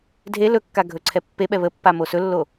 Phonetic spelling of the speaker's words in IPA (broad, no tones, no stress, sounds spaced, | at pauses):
dʱ e l ɵ kː a ɡʱ ɵ ǀʰ ɛ pː e ɓ ɛ β ə pː a m o s ɵ lː o